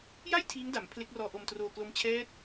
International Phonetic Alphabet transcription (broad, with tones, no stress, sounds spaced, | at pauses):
j a˥˩ j tʰ iː˦˥ ŋ d a˩˦ m pʰ l e˦˥ k̚ r ɔː˧ ʔ o˧ m t r oː˧ k l o˦˥ m t͡ɕʰ ɛː˦˥ t̚